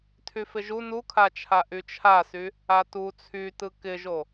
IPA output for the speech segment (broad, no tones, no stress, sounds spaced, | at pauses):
tʰ y f ɪ ʒ u n u kʰ a t͡ʃʰ a ʔ y t͡ʃʰ a s y | a t u t͡sʰ y t ɯ k ɪ ʒ o